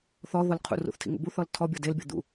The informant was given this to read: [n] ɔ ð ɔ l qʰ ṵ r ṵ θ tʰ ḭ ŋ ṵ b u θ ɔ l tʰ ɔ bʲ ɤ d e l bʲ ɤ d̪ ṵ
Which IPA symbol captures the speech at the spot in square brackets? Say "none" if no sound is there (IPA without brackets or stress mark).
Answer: θ